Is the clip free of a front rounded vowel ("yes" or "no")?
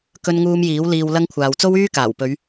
no